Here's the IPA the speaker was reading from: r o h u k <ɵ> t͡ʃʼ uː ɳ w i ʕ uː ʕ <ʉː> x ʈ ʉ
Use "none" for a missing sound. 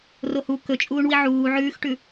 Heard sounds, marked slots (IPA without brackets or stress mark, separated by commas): ɵ, ʉː